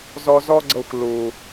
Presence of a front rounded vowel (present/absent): absent